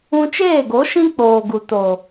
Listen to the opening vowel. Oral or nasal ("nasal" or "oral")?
nasal